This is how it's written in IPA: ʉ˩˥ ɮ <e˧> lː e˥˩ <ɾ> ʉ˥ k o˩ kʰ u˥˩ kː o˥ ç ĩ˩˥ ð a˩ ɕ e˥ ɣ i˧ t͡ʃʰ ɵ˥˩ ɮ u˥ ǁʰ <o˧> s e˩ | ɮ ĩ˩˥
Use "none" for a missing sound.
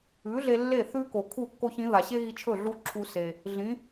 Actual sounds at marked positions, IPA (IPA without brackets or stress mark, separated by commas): e˧, θ, u˧